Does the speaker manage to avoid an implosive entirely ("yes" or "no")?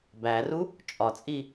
yes